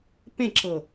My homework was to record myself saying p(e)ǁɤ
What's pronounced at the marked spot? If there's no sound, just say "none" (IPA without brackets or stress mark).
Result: ẽ